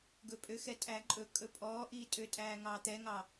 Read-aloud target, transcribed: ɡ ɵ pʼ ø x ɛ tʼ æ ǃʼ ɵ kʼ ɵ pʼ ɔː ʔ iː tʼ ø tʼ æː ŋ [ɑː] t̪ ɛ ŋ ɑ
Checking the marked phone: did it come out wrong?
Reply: no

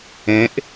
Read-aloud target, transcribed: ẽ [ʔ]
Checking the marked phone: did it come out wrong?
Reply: no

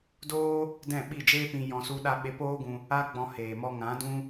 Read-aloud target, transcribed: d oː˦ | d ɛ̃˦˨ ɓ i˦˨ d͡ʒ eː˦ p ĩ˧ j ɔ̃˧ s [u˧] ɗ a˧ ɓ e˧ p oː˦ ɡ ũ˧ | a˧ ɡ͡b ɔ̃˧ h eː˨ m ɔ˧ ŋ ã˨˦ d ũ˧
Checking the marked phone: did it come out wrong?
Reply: no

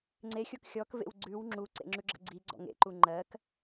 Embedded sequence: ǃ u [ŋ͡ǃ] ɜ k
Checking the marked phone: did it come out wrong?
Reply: no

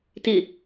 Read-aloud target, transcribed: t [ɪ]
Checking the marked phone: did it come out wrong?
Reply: no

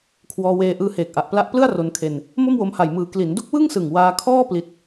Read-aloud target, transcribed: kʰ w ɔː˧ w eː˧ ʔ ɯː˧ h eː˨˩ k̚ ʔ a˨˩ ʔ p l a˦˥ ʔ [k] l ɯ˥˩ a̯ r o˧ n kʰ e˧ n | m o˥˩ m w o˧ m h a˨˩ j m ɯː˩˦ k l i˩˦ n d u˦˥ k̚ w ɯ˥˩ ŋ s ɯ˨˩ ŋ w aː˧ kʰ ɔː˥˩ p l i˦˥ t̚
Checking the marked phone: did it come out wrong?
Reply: yes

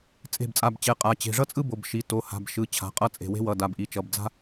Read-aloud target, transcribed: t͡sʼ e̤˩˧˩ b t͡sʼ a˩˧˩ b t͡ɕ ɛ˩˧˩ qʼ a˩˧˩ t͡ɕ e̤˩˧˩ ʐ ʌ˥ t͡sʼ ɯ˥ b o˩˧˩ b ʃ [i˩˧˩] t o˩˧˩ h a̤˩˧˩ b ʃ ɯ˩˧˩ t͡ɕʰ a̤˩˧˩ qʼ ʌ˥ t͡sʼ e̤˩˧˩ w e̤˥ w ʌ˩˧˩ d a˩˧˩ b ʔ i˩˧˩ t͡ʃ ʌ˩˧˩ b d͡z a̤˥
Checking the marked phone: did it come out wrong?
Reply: no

